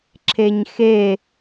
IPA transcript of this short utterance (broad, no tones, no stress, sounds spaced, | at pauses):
ǁʰ e ɲ x e